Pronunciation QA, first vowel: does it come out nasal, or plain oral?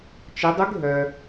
oral